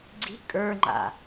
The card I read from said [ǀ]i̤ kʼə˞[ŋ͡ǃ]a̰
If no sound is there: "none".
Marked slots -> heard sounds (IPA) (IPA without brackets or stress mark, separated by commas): ɡ͡ǀ, ŋ͡ǃ